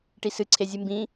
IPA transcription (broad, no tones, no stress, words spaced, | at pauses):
ʈisɨǀʰe zʲɨmbĩ